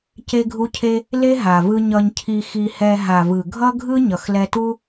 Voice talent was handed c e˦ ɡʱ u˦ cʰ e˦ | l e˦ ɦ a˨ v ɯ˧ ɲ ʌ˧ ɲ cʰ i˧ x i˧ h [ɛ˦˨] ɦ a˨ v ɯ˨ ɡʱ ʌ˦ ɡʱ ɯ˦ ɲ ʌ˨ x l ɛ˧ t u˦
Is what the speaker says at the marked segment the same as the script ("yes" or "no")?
no